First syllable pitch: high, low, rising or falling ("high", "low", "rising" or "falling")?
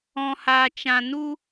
low